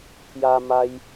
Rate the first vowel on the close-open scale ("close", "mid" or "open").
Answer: open